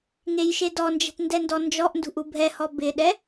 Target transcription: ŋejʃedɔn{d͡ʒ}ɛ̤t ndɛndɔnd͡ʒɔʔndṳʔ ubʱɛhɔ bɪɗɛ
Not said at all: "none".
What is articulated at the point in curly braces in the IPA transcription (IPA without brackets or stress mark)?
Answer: d͡ʒ